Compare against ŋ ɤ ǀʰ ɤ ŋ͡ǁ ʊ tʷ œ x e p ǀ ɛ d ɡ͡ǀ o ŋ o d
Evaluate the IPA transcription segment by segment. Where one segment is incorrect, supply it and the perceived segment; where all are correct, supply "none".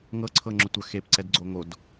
none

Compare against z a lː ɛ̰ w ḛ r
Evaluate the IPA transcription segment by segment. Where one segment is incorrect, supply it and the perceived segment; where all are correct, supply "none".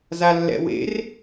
none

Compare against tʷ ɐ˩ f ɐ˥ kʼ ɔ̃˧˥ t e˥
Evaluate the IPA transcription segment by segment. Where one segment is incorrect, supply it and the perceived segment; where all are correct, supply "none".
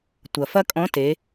e˥ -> e˩˧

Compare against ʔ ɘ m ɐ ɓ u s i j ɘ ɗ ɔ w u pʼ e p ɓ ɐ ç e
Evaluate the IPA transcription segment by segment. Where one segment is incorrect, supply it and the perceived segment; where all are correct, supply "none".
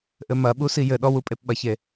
none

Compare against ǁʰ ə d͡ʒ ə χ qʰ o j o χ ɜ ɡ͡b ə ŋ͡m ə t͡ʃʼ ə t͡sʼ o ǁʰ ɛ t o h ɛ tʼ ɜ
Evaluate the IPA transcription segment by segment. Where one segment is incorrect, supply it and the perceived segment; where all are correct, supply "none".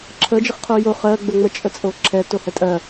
none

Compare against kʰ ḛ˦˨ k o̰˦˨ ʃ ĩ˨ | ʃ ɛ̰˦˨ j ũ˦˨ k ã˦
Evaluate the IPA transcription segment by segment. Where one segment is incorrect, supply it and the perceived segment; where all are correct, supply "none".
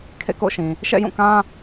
none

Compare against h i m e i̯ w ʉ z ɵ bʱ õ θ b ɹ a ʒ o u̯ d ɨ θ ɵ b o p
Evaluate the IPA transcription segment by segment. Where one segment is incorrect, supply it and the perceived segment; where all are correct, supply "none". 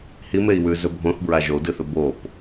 none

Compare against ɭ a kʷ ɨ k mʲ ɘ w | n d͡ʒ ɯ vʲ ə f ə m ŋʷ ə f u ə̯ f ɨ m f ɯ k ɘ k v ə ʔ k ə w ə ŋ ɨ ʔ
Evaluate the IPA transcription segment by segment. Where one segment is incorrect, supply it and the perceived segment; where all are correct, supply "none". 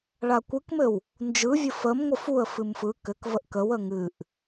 mʲ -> m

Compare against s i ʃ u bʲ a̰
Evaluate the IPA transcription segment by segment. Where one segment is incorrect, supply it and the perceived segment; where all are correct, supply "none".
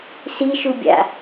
none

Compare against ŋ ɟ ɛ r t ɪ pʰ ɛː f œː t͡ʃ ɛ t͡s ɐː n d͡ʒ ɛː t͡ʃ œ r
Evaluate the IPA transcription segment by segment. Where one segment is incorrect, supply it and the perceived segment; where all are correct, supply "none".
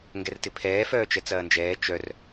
ɟ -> ɡ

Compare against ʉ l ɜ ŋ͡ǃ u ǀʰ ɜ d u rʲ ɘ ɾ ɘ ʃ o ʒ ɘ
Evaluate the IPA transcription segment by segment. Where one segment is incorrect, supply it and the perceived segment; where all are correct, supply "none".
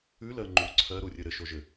d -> ɾ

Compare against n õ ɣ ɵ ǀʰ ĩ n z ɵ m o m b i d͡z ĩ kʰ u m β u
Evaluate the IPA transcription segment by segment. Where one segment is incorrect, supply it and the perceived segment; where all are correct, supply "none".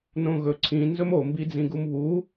kʰ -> ɡ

